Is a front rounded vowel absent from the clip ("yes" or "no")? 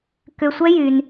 no